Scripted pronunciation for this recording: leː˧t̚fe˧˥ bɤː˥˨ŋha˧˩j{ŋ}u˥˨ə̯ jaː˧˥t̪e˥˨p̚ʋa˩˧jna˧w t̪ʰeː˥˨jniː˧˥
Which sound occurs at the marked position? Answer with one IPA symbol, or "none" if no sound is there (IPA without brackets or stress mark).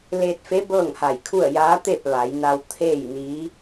kʰ